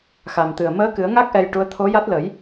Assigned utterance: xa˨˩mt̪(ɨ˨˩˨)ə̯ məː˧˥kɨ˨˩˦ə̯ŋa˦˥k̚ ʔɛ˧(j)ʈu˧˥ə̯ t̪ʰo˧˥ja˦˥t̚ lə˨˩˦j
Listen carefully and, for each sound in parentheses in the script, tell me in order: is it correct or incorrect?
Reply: incorrect, correct

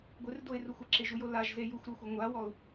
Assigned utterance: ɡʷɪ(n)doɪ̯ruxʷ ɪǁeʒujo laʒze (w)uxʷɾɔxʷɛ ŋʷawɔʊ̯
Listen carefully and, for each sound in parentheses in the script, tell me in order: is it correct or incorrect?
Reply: incorrect, incorrect

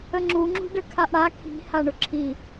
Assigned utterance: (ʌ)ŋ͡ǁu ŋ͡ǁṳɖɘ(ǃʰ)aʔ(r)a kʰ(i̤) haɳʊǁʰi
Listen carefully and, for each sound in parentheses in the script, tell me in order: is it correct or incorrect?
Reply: incorrect, incorrect, incorrect, correct

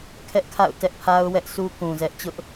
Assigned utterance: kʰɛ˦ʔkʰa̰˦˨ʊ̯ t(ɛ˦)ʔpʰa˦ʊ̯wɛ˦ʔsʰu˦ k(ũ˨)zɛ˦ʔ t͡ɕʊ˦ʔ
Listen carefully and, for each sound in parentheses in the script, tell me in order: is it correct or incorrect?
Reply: correct, correct

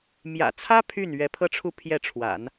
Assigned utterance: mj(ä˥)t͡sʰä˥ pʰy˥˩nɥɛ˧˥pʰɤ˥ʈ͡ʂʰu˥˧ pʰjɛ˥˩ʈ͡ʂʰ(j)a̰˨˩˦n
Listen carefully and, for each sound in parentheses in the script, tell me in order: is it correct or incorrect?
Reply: incorrect, incorrect

